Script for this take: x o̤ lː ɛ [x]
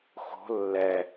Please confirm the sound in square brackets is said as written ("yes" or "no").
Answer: no